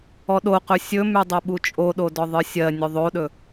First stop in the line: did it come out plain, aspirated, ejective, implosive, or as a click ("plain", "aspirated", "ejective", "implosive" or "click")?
implosive